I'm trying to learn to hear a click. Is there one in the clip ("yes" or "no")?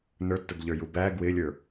no